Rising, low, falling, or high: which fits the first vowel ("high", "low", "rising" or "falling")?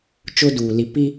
high